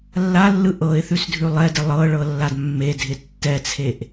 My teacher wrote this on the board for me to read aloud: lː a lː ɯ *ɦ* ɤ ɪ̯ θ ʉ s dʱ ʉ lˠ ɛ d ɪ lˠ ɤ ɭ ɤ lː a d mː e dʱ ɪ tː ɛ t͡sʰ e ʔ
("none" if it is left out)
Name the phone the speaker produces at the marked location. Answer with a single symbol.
ʔ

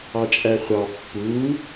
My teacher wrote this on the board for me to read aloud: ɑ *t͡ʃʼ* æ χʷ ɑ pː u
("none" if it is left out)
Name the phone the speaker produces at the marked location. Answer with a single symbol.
t͡ʃʼ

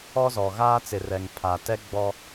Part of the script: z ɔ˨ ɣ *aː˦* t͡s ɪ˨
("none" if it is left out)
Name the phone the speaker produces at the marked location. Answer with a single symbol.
aː˦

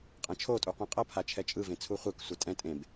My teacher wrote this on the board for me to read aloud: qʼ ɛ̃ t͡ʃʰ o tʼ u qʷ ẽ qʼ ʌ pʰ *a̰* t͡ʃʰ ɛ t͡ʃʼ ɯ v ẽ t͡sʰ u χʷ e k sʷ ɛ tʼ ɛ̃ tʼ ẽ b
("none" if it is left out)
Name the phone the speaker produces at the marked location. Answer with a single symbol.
a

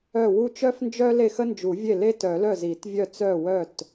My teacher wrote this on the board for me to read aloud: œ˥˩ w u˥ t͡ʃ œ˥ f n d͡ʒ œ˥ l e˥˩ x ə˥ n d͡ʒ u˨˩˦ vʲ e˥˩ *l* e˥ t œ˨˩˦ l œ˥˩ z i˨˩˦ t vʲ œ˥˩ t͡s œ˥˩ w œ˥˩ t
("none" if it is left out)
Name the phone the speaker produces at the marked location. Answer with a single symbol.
l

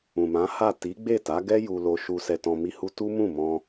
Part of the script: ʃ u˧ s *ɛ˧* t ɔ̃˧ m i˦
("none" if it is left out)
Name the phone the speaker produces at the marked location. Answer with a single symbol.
ɛ˧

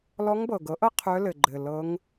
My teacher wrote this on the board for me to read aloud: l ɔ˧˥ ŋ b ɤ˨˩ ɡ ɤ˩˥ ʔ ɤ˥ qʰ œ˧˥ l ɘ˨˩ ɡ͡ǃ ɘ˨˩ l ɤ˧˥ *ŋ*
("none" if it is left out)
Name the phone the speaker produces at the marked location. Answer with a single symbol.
ŋ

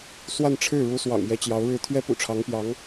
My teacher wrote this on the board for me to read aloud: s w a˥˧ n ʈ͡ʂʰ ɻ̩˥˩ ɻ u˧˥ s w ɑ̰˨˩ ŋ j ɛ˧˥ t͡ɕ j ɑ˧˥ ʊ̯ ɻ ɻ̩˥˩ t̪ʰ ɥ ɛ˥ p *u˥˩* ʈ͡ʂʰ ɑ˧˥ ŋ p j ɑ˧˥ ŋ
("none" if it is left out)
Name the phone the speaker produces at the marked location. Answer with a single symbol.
ṵ˨˩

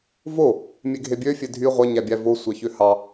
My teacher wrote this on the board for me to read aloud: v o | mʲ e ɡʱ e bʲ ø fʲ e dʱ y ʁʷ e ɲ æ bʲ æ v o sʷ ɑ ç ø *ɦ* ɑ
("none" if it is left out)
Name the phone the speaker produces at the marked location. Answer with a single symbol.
h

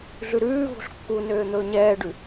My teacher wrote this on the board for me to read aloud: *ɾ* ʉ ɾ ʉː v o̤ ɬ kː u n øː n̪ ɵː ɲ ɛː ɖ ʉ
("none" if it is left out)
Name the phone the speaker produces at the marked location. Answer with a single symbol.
ɮ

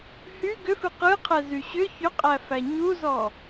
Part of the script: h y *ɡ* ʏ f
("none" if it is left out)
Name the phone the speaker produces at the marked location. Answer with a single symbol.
ɡ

